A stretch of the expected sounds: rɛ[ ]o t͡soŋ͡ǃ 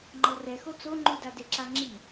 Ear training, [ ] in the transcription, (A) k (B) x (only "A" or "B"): B